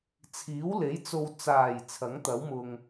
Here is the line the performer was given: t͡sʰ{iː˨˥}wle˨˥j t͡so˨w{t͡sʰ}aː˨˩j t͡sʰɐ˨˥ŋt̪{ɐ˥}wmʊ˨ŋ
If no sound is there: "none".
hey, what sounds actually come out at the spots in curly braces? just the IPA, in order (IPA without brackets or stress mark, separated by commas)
iː˨˥, t͡s, ɐ˨˥